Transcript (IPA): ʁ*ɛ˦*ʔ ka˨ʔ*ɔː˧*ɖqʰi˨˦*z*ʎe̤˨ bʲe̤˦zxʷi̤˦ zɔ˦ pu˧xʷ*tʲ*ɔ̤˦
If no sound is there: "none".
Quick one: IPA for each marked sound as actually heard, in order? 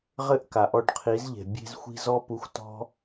ɘ˦, ɔ˧, z, t

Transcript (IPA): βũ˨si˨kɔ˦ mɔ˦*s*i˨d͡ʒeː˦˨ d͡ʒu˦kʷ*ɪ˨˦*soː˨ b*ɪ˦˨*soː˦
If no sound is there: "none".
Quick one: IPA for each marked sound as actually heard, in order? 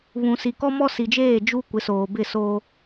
s, ɪ˨˦, ɪ˦˨

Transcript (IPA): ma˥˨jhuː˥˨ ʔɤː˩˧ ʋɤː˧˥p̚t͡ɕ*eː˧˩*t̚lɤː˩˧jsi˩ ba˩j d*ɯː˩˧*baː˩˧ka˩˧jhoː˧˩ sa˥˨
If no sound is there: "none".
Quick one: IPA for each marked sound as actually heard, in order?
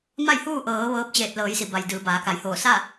eː˧˩, ɯː˩˧

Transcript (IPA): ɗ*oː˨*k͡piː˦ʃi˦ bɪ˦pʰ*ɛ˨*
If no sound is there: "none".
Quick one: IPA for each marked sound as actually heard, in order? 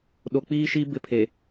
o˨, e˨

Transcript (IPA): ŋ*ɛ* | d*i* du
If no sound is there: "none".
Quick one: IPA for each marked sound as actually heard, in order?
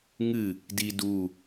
ɨ, i

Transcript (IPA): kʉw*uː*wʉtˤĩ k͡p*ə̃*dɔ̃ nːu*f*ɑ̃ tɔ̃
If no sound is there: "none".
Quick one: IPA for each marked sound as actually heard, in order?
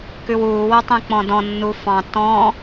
uː, ɔ̃, f

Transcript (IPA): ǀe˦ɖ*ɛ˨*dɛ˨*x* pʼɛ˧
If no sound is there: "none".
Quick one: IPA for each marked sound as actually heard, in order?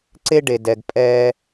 e˨, ɡ

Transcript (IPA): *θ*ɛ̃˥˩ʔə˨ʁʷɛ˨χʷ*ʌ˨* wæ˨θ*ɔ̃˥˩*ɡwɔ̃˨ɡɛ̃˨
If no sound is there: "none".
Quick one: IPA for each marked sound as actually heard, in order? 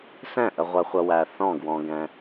s, ʌ˨, ɔ̃˥˩

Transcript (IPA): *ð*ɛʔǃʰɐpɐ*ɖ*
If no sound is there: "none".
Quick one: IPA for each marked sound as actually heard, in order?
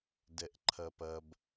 d, b

